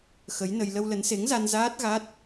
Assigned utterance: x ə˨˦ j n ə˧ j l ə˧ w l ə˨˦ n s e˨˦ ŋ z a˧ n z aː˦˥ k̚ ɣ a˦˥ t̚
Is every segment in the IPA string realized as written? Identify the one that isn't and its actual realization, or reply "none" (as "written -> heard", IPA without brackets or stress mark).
k̚ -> t̚